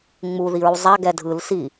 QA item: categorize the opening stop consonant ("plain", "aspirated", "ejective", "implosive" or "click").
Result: plain